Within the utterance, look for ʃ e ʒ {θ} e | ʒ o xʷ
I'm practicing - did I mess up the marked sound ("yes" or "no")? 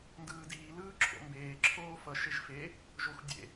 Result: yes